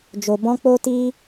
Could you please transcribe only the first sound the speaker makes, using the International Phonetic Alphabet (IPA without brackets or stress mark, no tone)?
d͡ʒ